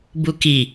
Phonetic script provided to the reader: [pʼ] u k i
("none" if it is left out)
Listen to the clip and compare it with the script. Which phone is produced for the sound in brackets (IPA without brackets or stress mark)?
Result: b